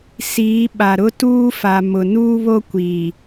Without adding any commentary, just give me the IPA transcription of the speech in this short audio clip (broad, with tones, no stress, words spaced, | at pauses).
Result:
siː˨˦ ɓa˨ɾʊ˦tuː˦fa˨ mʊ˨nuː˦βo˦ kʷi˨